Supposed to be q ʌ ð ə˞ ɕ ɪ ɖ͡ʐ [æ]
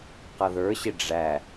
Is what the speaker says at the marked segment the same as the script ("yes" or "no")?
yes